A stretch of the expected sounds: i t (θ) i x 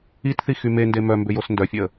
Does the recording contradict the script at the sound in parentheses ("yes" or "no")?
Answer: no